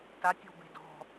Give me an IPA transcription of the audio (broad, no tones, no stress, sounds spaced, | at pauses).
t a tʲ ɔ̤ b e̤ d ɔ̤